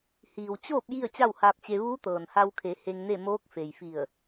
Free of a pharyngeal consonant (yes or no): yes